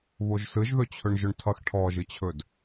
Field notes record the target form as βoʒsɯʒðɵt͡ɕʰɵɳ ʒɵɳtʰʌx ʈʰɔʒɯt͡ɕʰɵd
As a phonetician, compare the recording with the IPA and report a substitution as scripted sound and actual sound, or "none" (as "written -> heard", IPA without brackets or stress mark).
none